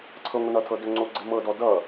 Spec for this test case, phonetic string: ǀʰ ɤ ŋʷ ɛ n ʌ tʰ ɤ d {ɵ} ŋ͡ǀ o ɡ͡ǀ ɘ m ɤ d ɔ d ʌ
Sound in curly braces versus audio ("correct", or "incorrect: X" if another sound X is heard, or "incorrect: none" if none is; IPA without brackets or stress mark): correct